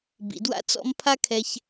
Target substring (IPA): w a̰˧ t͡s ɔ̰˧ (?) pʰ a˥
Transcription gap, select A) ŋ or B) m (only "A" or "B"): B